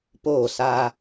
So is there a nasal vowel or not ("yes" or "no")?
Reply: no